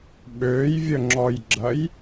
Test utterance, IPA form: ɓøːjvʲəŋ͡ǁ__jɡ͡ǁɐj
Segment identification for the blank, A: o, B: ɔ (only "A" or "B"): B